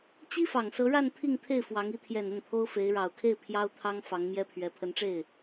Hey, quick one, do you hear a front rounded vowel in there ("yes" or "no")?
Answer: no